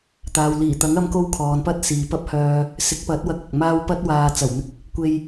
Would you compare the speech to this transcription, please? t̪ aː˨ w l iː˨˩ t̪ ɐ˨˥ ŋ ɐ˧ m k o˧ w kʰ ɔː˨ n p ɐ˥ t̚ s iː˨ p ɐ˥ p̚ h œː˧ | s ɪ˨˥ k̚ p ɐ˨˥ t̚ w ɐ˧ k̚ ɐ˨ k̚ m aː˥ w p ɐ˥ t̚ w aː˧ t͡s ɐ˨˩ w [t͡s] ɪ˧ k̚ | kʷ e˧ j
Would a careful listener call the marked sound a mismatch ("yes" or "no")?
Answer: yes